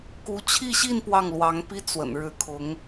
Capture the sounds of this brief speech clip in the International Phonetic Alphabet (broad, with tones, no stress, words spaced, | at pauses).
ku˧˥t͡ɕʰi˥˧ɕi˥˧n pwɑ˥˩ŋlwɑ˧˥ŋpi˥ t͡swə̰˨˩n ɻɻ̩˧˥kʰʊ˧˥ŋ